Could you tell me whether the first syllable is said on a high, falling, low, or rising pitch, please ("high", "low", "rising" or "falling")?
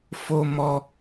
high